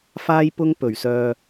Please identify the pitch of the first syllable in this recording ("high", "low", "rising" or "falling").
high